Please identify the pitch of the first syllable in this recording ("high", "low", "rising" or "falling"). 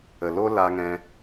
low